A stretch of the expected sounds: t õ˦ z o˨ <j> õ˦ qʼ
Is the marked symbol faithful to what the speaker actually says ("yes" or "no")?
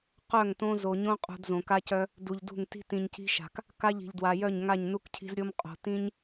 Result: no